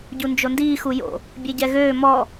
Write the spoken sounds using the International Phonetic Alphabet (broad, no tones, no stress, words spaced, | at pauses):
ɟund͡ʒondiː xujo̰ | bʲeɟɛɣøː mɔ